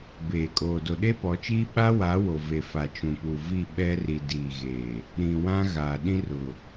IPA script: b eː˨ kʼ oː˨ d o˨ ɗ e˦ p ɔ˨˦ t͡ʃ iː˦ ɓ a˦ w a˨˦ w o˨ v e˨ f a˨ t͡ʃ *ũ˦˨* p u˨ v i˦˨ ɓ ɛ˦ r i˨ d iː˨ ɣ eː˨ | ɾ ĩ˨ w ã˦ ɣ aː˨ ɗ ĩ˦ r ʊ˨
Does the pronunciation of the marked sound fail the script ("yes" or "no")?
yes